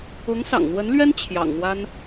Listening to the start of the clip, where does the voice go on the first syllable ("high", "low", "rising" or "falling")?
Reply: rising